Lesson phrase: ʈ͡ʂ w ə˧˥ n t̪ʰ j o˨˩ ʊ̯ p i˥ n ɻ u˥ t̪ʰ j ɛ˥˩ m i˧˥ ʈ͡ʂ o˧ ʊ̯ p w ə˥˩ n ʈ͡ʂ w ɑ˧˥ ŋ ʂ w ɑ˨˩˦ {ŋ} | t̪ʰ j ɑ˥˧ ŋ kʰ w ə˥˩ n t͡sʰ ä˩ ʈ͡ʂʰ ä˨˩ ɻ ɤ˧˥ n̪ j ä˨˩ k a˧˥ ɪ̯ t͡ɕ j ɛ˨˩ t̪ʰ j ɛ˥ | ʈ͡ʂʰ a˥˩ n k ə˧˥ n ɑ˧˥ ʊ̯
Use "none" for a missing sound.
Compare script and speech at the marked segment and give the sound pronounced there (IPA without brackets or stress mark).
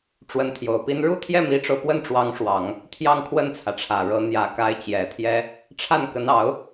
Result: ŋ